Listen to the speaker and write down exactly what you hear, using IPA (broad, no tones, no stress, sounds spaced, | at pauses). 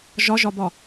ʒ ɒ ʒ ɒ b ɒ